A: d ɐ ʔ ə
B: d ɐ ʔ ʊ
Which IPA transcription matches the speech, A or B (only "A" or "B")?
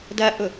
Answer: B